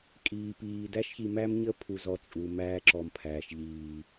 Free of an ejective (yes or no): no